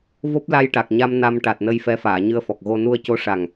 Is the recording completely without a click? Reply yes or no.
yes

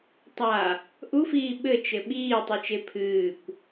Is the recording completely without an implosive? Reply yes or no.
no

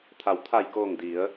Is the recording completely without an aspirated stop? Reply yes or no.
no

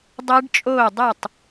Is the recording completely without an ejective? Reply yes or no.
no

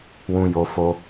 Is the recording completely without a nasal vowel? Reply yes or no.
no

